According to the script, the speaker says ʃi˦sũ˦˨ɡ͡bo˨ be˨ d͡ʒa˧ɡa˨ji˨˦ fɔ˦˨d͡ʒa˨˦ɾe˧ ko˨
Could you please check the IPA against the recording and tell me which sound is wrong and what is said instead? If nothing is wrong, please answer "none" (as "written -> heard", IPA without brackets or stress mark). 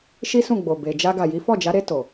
k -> t